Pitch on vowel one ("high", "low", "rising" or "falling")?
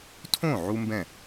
falling